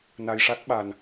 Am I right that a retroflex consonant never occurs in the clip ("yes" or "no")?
no